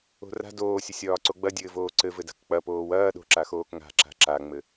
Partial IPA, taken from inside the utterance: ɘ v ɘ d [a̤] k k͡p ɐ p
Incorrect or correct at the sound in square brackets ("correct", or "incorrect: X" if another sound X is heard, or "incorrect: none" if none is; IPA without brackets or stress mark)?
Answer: correct